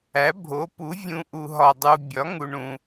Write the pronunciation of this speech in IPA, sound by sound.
æ˨˥ bʱo˨˥pu˨˥ vʲũ˧ ʔu˧ɦɒ˧dˤu˧ bʲɒ˨˥ŋu˧ɳũ˧

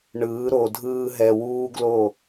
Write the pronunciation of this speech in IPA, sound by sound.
ɳɯː˨˦ɾo˨dʱɯː˧ɦɛ˨ wuː˦ɡlo˦˨

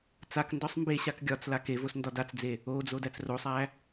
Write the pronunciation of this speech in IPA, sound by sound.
t͡sakndɒsˤ mbe ɕakɡʲɒt͡sla kevos ndɒdat͡sd͡ze | od͡zo dæt͡srosˤæ

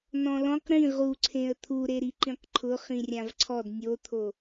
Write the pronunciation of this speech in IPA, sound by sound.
nɔ̃lɔ̃q ɾĩ ʁuǀʰẽə̯ t̪ʰuɾeɾi ǃĩqǃʰʊ χĩrʲãvǀʰɔd nʲot̪ʰo

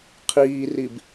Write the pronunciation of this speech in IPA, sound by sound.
qʰiːrib

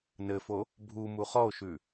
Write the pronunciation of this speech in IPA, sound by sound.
nɘfo | bʱu muχɔo̯ʃʉ

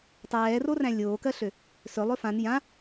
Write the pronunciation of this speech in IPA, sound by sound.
tˤɛːroræ̃ lʲoːkɜɬø | sɵ lˠɵfãn jã

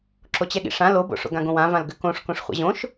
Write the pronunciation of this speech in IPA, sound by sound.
ǁot͡ɕɛɠḭʂã lobo̰ ʂo̰ɡãɡõwã vãlɡʏkõʂkõʂ χʷɛ̰ʑõʃ

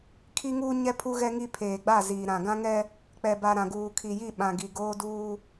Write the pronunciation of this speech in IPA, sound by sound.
kʰi˦ŋuː˦ɲɛ˦ pʰu˦ɣɛ˦ŋi˦ pʰeː˨ɡ͡ba˦˨ziː˨ ɾã˨ɡã˦ŋɛ˦ | k͡pɛ˨ba˨ ɾã˨ɡuː˨kʰi˨ji˦˨ ɓã˨ɡi˨ ɡoː˦duː˦

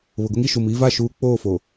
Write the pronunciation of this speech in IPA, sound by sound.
βʊ˨ɡʊ˦ŋi˨ ʃu˨miː˦va˦˨ ʃuː˨ k͡poː˦˨fo˨

